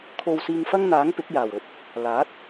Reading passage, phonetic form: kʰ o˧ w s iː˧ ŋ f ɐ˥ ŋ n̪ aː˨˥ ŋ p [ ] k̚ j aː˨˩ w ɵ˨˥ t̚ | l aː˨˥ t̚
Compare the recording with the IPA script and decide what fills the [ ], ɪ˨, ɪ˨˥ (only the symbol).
ɪ˨˥